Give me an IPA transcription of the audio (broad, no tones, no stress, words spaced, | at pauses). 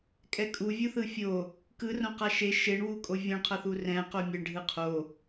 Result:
kʼɛkʼu vʲuθɯfʲo | kɯ rõqaʃe ʃeɳwukʼo vʲõɳqʰʌθu rɛ̃ qomʲeɳɖʱɯ qʰo